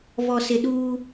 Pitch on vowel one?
low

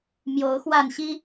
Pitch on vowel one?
rising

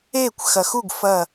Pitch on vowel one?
falling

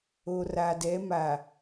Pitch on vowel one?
low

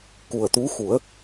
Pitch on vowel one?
low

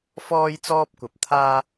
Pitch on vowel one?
high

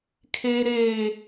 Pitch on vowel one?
high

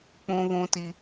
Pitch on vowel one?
high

